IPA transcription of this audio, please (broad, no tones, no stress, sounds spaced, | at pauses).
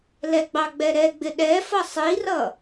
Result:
l ɛ ɡ͡b ɑ ɡ͡b ɛ ɾ ɛ ɡ͡b ɪ ɗ ɛ f ʌ sˤ i r ʌ